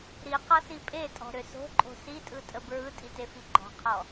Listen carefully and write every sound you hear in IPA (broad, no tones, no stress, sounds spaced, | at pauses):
ɾ i q ɒ s i pʼ e tʼ ɔ̤ ɾ ʏ s o̤ ǃʼ o̤ s i tʼ ɯ tʼ ə b ɹ ɯ tʼ i t e f i ɡ͡ǃ ɔ̤ qʰ ɔ